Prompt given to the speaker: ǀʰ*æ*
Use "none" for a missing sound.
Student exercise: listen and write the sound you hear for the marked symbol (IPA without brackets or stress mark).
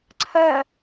ɜ